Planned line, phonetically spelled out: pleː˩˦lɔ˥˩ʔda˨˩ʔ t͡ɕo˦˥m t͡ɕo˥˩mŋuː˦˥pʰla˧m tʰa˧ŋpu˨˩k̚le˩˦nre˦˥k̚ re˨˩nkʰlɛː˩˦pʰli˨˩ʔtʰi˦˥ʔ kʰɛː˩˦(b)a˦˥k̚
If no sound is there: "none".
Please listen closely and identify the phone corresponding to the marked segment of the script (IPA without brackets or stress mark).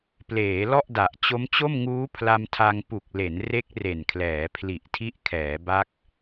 b